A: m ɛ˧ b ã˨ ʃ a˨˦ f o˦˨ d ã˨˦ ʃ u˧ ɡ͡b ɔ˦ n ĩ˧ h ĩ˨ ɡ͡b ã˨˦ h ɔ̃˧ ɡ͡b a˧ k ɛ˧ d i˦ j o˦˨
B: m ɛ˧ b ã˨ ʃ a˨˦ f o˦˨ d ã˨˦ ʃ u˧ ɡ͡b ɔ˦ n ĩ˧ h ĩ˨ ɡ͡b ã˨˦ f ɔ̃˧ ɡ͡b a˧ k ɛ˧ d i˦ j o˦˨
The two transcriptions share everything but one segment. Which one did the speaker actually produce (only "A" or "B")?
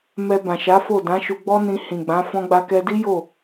B